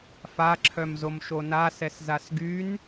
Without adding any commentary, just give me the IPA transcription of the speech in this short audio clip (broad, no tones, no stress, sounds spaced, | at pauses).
f a ǁʰ œ m z o m ʃ o n a s ɛ s z a s ɡ y n